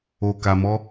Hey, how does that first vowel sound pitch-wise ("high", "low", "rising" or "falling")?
low